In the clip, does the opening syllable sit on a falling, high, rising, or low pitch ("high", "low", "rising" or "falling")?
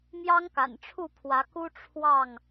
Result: high